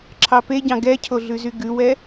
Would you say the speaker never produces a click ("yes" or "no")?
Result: no